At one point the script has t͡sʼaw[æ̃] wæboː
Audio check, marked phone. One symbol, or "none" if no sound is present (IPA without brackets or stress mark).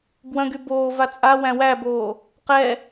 æ̃